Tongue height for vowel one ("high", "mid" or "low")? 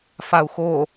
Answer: low